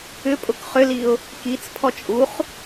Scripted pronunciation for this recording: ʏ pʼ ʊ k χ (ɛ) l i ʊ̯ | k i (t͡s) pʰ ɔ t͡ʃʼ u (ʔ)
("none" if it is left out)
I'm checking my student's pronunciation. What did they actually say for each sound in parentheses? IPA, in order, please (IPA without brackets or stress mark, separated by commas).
ʏ, t͡s, χ